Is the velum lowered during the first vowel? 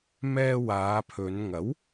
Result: no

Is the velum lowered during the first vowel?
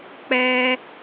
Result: no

